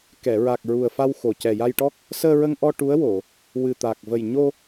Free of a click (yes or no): yes